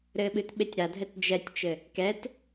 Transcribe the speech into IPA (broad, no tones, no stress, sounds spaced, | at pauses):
ɾ ɘ ɓ ɨ t ɓ e tʲ ɾ a dʱ ɛ t d͡ʒ ɛ tʲ t͡ʃ ɘ | k ɛ t